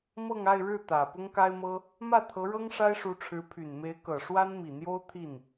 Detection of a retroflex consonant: present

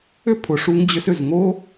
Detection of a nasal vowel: absent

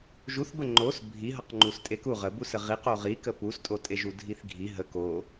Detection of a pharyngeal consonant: absent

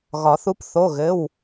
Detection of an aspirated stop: absent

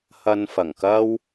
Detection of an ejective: absent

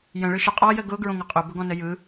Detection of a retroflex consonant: present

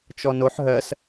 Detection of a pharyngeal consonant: present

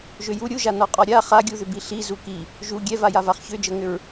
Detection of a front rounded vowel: present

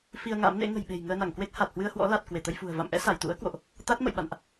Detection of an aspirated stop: absent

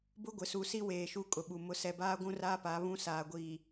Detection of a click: absent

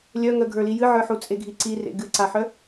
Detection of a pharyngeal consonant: present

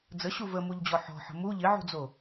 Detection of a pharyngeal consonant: present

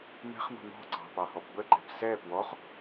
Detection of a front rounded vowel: absent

